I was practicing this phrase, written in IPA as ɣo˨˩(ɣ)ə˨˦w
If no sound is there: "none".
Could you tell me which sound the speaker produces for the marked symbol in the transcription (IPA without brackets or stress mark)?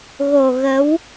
ɣ